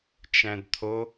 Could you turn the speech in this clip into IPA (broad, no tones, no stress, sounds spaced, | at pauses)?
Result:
t͡ʃ æ̃ d t̪ʰ o